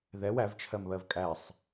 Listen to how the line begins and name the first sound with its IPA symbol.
ð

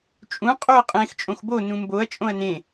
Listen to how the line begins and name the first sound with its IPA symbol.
t͡ʃʼ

